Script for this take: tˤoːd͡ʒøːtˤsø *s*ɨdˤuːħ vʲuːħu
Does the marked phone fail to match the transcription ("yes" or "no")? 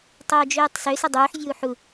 no